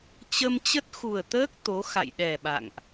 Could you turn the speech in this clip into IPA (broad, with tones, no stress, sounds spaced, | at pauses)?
t͡ɕ ə˧ m t͡ɕ ə˦˥ t̚ x u˨˩ ə̯ t̪ əː˦˥ k̚ t̪ o˨˦ x a̰˧˨ j ɗ ɛ˨˩ ɓ a̰˧˨ ŋ ʔ